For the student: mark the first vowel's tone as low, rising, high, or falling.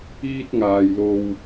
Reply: high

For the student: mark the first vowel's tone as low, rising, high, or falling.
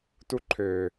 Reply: high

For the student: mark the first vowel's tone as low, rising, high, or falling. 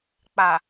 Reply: low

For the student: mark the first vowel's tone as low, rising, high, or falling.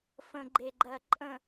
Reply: low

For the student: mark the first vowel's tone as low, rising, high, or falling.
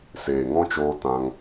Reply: low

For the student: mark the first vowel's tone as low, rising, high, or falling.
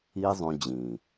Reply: high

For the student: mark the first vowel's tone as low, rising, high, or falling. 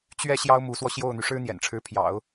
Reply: falling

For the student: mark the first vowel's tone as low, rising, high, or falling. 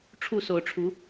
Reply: falling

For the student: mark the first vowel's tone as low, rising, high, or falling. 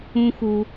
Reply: high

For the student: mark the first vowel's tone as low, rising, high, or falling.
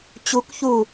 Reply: rising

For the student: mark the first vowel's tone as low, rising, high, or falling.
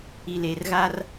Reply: low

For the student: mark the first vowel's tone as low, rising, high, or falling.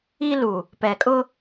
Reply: high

